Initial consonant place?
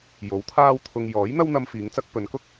palatal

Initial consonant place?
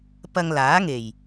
labial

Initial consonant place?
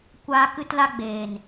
velar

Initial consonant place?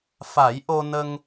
labial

